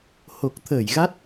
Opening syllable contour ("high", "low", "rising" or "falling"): low